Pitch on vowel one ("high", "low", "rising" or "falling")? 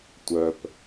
low